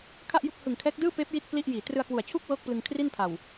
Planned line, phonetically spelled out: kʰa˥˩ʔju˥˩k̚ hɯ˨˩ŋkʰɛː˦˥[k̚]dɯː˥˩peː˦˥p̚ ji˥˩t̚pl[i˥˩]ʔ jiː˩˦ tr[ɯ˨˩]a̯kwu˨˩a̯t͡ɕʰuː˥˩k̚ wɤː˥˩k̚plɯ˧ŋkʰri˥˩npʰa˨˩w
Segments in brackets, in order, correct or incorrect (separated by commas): correct, correct, incorrect